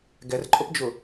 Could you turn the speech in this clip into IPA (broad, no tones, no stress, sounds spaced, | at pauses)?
ɡ ɛ r ǃʼ ʊ p d͡ʒ ʊ